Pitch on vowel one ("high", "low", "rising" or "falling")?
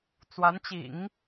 rising